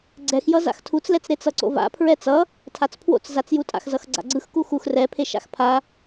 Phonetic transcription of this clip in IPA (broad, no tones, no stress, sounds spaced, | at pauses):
ɡ͡ǀ ɛ x j ʌ z a̰ x tʰ u t͡s l ɛ t͡s ɾ e t͡s ʌ ǀ o̰ v a̰ pʰ ɹ ɛ t͡s ʌ | tʰ a t͡s pʰ w o̰ t͡s z a t͡s j u tʼ a̰ x z ʌ x ɡ͡ǀ a̰ ɡ͡ǀ ɯ x k u x u x r ɛ pʰ e ʃ a̰ x pʰ a